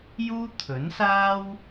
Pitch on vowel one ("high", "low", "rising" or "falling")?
high